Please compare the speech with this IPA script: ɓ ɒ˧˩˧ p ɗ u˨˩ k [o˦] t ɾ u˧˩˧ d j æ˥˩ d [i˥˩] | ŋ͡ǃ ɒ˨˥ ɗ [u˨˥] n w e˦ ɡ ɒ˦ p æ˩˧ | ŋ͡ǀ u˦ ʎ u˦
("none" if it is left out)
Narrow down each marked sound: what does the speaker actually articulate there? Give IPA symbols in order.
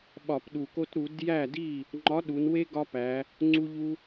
o˦, i˥˩, u˩˧

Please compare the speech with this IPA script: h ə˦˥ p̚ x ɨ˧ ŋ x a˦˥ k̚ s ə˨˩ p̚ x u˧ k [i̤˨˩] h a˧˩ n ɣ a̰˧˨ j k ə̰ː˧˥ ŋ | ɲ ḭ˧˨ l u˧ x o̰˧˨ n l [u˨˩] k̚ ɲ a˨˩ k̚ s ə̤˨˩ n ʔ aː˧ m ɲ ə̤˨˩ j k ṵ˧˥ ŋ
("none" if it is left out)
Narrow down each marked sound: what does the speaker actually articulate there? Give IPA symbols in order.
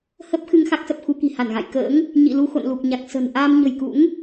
i̤˨˩, u˨˩

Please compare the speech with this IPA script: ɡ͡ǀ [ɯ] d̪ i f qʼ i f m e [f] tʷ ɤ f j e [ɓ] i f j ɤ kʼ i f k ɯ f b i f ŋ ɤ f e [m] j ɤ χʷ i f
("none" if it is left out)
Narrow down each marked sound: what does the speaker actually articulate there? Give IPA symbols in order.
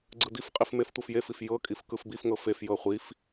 ɯ, f, f, f

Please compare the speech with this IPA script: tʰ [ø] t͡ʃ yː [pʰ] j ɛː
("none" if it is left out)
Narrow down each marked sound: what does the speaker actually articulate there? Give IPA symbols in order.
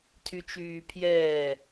y, pʰ

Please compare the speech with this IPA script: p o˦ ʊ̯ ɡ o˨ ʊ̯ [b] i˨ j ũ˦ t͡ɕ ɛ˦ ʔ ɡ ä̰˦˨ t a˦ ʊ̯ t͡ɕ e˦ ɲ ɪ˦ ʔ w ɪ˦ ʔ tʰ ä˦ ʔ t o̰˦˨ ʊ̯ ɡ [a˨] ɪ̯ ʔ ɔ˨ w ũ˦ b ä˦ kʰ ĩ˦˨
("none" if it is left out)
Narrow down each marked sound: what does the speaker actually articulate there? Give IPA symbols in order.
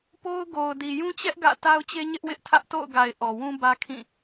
d, a˨

